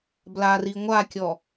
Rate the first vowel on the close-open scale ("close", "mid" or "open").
open